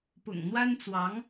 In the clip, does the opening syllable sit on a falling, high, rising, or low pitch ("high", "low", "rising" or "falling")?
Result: low